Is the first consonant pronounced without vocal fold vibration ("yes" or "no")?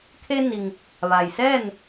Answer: yes